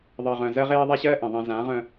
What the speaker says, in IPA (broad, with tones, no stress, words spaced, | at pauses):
ðˤɜ˨ʁœ̃˨zɜ˦ ʁeː˦ðˤa˦ɕɜː˦ʔẽ˨ ðˤɛ̃˨zã˨˦ ʁœ̃˦